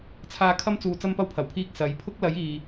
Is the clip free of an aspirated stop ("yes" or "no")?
no